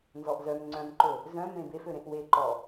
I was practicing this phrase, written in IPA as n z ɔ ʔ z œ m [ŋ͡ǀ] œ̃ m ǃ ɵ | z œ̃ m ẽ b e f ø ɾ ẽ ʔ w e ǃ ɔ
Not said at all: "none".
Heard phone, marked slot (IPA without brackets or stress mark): ŋ͡ǀ